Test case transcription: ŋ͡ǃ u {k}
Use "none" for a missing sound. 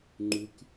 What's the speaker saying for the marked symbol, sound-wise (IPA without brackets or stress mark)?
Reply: k